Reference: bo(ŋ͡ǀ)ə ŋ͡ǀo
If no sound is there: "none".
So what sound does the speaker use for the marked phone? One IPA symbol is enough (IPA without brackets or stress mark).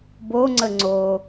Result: ŋ͡ǀ